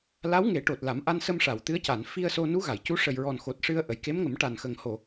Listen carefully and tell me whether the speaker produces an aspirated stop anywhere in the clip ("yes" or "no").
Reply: no